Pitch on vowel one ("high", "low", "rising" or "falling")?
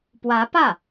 rising